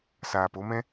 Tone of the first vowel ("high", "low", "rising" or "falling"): low